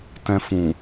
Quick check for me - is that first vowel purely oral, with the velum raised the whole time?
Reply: no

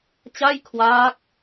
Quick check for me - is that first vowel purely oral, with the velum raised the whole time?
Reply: yes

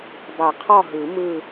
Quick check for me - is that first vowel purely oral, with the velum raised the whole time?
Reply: yes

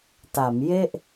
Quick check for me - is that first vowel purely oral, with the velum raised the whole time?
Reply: yes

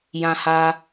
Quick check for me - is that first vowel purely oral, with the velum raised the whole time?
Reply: no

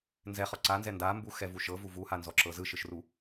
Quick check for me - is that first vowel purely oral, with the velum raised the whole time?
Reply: yes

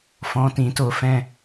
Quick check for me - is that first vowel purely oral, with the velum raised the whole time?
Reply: no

